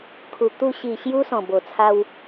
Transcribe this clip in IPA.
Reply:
kʰ u˨˩ t̪ u˧ ɕ i˨˩ ɕ j u˧ s ɔ̃˨˩ b o˨˩ t͡sʰ a˧ w

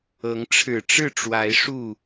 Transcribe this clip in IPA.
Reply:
ɤ˨˦ ŋ ʈ͡ʂʰ ɻ̩˨˩ ʈ͡ʂ ɻ̩˥˨ ʈ͡ʂ w a˨˦ ɪ̯ ʂ u˥˨

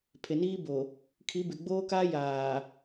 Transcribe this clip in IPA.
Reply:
pʰ e˨ n iː˦ b o˨ | kʰ i˨˦ b ɪ˨ ɡ͡b oː˦ k aː˦ j aː˨

